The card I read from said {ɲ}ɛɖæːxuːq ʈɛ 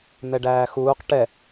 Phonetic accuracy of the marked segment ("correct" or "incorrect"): incorrect